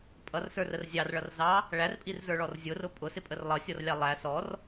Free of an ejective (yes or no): no